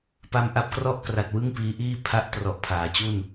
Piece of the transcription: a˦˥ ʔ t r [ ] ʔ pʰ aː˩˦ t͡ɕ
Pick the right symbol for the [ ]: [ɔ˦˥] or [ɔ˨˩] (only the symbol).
ɔ˨˩